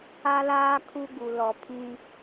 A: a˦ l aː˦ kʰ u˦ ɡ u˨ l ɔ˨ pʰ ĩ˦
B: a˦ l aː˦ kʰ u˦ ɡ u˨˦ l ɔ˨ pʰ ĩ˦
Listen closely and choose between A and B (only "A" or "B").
A